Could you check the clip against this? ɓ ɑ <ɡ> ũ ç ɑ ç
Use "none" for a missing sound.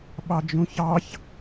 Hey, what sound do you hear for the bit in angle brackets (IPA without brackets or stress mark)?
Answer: d͡ʒ